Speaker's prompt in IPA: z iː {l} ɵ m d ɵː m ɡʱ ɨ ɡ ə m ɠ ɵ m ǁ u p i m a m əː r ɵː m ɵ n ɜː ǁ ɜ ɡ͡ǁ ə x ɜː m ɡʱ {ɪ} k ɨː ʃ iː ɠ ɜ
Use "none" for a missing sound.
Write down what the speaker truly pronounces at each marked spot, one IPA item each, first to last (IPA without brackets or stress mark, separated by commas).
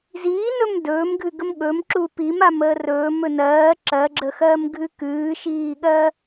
n, ɨ